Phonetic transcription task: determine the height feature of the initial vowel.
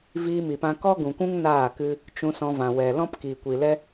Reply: high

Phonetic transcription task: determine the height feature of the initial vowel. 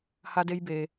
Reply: low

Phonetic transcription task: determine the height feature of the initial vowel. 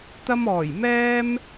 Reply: low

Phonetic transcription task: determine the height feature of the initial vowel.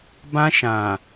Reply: low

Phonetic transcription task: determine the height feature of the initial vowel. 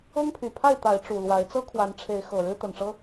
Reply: mid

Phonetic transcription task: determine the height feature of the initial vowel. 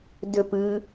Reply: high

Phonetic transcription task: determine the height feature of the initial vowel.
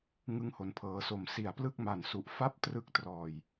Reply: high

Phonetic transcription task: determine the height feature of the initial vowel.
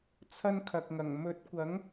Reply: low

